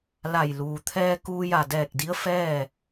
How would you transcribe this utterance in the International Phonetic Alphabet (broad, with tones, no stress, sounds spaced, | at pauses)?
l a˧˩ j l uː˩ t̪ʰ ɛː˧ k uː˧ j a˧˩ d ɛː˧˩ k̚ d i˧˥ ə̯ f ɛː˥˨